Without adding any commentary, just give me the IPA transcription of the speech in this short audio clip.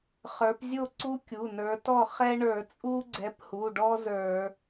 χ ə˞˨˦ p zʲ o˥˩ ǀ u˦ kʲ u˩˧˩ n ə˞˨˦ t ɔ˥˩ χ ɛ˦ ɳ ə˞˧˩˧ t͡sʼ u˦ ɡ͡ǀ ɛ˨˦ p h u˩˧˩ ɖ ɔ˦ z ə˞˧˩˧

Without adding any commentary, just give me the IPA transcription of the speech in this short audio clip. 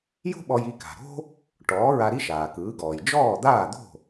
j o̤˥ ɓ ɔ˧ j i˧ k a̤˩ ɾ o̤˥ | ʈ ɔː˩˥ ɹ a˧ ɾ i˥ ʃ aː˩ k ɯː˩˥ ɡ ɔː˩ j d͡ʒ ɔː˥˩ d̪ aː˥˩ d̪ o̤˥˩

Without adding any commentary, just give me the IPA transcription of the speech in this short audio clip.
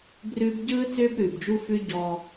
b r ʉː˦ b ɟ ɯː˦ t͡s ʏː˦ b ɾ ʉː˨ b d͡ʒ u˦ f ʉ˦ ɟ ɔ˦

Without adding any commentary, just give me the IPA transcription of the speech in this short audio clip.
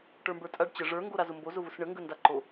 ʈ ə˞ m b ə˞ tʼ a ɖ t͡ɕ ə ʐ ə˞ ŋ ɡ o ɾ a z ʊ m b o z ʊ v ʊ s ɳ ə ŋ ɡ ə n d a ǃ o

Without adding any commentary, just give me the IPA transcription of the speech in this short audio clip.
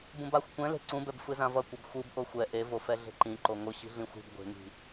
b ũ b a xʷ kʷ ɛ̃ l e̤ ǀ ũ b ɛ b f ɯ z ã v ʌ kʷ ʌ b xʷ ɯ b ʔ o xʷ ɛ ʔ e v o f ɛ ɮ e̤ ǃ ĩ ǃ o ŋʷ ɯ ɕ i̤ ɮ ĩ xʷ i̤ b ɡʷ e̤ ŋ i̤

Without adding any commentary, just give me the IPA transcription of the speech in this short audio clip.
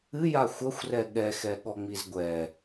ɨ j a xʷ ɐ xʷ r ɛ ɠ ɛ x ɛ ɠ ɔ ŋ͡m i z ɡʷ ɛ

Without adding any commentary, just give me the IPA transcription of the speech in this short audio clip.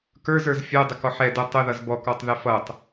k ə˞ z ə˞ z fʲ ɛ dˤ ə k ɔ ħ ɛ d ɛ tˤ ə ð ʌ z b ɔ k ɔ tˤ ð ɛ f ʌ tˤ

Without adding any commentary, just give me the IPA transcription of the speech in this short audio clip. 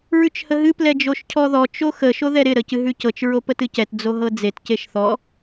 ɹ ʉ t͡ʃ h ə ɦ ɨ p l ɛ d͡ʒ o ʃ cʰ ɔ ð ɔ t͡ʃ o x ə ʃ o ð ɛ ɾ ɪ ɾ ə c ɨ ɦ ʉ c ɤ t͡ʃ ɹ o p ə t ɨ c ɛ t d͡z o ɦ ɤ d͡z e t c e ʃ θ ɔ

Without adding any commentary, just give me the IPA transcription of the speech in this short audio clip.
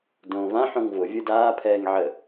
d õː v ã ħ õ ŋ v ʊ vʲ ɯ d aː pʰ ɛː ŋ ʕ ə

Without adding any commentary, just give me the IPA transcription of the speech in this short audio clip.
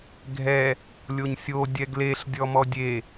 ɡʱ ɛ | lʲ o ɲ sʲ o dʲ ɛ ɡ l e ɬ dʲ ɔ m ɔ dʲ e

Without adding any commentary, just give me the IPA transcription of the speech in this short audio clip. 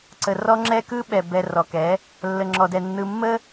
ǀ ə˨ r ɔ˦ ŋ͡ǁ ɛ˦ k ɯ˦ ɓ ɛ˨ b ɛ˨ r ɔ˨ k ɛ˨˦ | lː ə˨ ŋ͡ǁ ɔ˨ d ɛ˨ nː ɯ˨ mː ə˦

